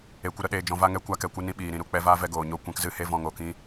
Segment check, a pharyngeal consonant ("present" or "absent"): absent